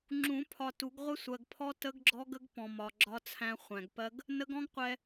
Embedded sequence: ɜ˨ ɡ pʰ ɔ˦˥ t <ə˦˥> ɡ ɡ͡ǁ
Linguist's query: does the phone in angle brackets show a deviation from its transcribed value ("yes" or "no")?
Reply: no